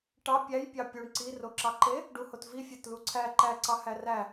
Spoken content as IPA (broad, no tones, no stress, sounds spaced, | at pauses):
ʈ ɑ pʲ æ j pʲ ɑ pʲ u ɳ ǀ i r o ǁ ɑ ǃ e | ɖ u h o t v i fʲ æ t l u ǀʰ æ ǃ æ ǀ ɑ h æ r æ